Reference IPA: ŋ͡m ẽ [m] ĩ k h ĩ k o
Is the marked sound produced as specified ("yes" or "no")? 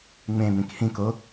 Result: yes